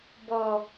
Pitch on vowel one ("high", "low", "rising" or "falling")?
low